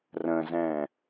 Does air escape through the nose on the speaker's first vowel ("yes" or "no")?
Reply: yes